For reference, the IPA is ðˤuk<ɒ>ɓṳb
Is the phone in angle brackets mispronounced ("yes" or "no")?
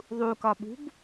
no